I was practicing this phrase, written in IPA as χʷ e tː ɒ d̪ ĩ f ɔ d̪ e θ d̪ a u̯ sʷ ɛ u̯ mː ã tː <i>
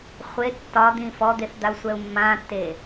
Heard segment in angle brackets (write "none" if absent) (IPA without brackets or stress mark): e